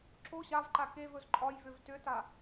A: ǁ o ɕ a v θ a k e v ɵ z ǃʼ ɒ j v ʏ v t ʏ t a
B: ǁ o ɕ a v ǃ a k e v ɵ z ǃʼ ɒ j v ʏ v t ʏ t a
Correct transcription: B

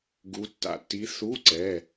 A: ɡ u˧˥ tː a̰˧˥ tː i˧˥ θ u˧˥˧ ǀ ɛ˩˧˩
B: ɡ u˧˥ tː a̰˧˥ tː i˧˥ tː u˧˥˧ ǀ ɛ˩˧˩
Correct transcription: A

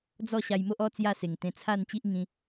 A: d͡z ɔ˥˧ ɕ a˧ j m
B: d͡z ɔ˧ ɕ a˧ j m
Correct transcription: A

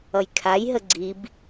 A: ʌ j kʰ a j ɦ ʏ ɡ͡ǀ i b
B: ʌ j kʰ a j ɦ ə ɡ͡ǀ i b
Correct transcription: B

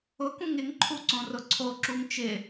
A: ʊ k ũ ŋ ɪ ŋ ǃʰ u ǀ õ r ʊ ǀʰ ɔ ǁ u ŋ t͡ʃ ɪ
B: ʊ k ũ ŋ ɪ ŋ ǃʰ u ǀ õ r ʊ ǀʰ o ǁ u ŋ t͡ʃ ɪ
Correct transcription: B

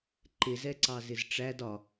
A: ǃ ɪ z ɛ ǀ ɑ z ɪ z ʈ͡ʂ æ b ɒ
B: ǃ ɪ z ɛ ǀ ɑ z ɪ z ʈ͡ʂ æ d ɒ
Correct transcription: B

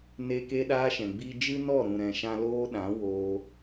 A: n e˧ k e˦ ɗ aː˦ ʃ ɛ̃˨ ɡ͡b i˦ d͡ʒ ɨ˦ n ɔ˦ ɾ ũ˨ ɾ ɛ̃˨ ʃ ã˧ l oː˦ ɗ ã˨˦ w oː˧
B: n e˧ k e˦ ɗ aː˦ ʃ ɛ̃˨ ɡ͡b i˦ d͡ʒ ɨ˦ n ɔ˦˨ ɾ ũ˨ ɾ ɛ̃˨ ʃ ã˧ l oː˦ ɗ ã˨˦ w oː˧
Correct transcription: B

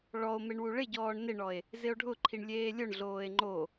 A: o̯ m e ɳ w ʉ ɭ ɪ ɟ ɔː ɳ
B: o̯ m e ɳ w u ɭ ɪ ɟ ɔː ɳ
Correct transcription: B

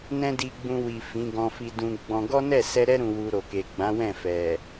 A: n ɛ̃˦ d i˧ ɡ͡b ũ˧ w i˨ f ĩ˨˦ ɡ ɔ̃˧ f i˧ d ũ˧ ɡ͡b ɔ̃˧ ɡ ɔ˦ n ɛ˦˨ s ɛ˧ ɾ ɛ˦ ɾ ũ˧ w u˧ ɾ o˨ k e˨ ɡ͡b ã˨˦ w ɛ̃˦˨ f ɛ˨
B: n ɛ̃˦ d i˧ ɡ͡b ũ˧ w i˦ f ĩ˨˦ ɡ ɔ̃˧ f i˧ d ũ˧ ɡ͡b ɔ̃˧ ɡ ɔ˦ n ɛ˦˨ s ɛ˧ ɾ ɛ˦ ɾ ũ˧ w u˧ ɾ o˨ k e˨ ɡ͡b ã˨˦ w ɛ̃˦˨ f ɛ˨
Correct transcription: A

